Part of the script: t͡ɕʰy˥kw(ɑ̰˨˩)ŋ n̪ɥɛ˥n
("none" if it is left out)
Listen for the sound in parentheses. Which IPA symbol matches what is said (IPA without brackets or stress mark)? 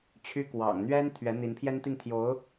ɑ̰˨˩